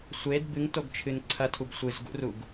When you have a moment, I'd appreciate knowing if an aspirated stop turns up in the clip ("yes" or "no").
yes